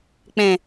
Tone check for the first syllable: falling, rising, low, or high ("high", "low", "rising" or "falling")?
low